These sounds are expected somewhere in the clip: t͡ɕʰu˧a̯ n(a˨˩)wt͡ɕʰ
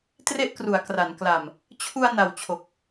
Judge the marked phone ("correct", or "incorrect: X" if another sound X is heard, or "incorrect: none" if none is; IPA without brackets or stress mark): correct